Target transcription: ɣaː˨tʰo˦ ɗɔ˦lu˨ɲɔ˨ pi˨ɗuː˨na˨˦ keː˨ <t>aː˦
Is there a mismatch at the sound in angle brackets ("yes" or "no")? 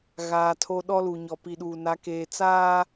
yes